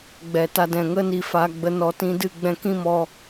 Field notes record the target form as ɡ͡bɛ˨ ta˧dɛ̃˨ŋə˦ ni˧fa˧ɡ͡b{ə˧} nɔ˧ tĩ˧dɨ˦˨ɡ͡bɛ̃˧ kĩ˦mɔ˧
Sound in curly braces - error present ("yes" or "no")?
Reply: no